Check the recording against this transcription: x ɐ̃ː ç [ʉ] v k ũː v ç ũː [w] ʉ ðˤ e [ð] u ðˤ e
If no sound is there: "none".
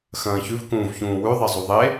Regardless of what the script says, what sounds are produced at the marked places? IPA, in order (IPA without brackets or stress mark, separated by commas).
ʉ, w, zˤ